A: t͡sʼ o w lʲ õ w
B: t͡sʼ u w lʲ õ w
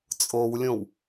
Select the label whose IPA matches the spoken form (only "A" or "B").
A